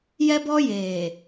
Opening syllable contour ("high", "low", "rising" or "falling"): high